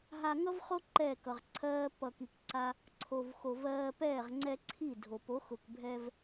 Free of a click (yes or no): no